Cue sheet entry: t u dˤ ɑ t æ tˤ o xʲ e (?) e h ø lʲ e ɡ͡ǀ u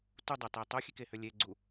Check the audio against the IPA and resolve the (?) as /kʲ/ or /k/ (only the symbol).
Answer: k